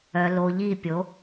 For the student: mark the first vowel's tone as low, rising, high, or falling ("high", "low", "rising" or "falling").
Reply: low